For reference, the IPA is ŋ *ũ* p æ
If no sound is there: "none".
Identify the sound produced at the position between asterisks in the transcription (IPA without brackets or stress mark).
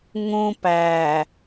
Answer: ũ